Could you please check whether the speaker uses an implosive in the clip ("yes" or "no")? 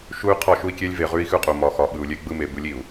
yes